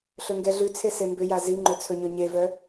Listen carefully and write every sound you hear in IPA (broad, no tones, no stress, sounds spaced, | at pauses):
ɬ ɵ ŋ ɡ ɛ ɮ ʉ t͡sʰ e s e m b ʏ j a z i ŋ͡ǃ ɵ t͡sʰ ɵ ɲ ɵ ɲ e v œ